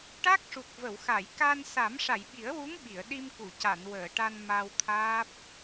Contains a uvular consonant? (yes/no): no